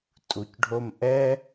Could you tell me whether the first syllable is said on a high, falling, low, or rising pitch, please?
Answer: low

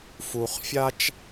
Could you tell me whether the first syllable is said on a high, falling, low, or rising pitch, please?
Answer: high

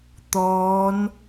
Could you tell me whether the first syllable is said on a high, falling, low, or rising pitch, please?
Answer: rising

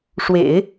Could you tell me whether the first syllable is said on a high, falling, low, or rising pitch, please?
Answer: low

